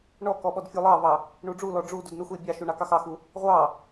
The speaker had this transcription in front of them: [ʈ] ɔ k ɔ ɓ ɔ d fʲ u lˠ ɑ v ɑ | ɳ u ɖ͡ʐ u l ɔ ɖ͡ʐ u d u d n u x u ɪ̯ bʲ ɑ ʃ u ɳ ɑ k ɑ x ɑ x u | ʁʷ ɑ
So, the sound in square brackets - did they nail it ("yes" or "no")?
no